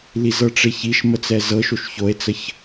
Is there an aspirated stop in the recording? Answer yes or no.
no